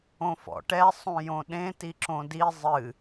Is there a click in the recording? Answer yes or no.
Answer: yes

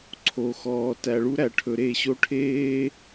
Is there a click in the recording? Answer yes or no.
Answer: yes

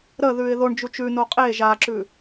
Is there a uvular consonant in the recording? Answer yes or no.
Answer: yes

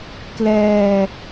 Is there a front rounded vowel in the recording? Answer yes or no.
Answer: no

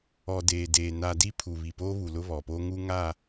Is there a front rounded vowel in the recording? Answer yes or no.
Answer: no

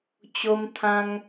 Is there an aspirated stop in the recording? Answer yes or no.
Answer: yes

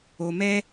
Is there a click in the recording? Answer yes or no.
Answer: no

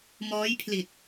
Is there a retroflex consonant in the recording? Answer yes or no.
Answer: no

